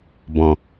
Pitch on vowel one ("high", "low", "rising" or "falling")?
low